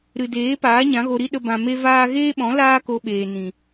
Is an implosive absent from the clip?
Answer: no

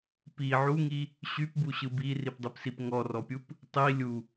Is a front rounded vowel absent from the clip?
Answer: no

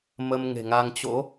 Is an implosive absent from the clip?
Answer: yes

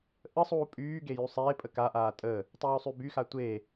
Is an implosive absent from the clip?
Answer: yes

